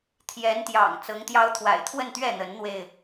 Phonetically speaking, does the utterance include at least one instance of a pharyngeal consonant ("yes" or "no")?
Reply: no